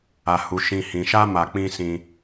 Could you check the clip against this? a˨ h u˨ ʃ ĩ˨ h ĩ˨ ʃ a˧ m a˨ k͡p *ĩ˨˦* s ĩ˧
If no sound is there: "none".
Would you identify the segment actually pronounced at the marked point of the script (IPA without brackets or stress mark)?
ĩ˧